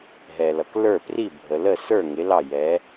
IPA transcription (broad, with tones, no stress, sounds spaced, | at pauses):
ɦ ɛ˩ l ʌ˩ k l ə˞˥˩ p r i˥˩ bʱ ə˩ l ə˥˩ s ə˞˥˩ ŋ ɪ˩˥ l ɑ˥˩ j ɛ˩˥